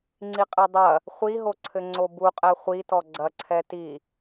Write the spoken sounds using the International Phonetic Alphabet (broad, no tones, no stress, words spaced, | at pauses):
ŋ͡ǀiqʼedˤɐ | χʷiɦoǀʰɘ ŋ͡ǀobuqʼɛ χʷitɔ ɡ͡ǀɐ ǀʰɛti